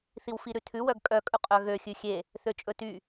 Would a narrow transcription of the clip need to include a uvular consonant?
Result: yes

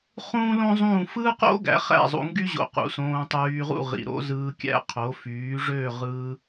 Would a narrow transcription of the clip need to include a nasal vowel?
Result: yes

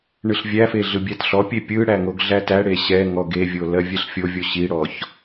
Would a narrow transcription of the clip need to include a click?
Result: no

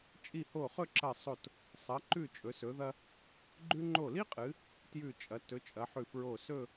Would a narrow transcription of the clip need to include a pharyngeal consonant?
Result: yes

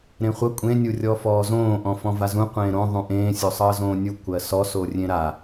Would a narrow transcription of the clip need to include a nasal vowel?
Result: yes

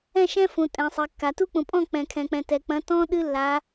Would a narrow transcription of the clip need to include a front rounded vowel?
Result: no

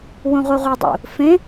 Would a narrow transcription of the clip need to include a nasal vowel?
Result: yes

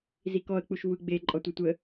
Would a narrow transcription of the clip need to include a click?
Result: yes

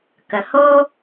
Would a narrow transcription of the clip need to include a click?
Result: no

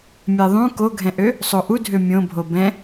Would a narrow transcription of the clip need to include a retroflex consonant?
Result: no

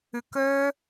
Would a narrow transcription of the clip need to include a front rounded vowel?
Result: yes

